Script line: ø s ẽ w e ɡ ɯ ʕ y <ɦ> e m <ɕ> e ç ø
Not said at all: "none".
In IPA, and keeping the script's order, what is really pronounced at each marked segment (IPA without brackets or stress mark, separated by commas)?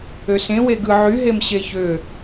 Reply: ɦ, ɕ